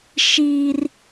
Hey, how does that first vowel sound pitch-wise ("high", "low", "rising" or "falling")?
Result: high